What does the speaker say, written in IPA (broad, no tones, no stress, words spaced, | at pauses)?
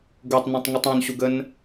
ɡutˤnũtˤŋutˤ õnɕuɡən